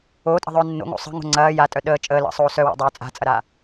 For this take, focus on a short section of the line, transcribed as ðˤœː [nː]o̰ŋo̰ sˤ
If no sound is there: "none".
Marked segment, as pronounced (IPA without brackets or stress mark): nː